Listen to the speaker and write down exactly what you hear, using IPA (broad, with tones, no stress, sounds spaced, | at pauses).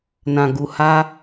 n ã˨ ɡ u˨ h a˧